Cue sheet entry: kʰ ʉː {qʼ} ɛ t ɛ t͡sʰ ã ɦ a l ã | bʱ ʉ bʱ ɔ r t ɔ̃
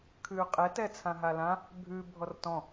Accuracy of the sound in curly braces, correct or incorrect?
correct